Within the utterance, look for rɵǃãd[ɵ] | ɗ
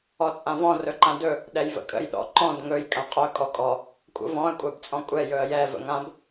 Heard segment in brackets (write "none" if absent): ɵ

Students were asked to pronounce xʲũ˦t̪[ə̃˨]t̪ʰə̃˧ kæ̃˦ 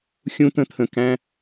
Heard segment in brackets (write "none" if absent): ə̃˦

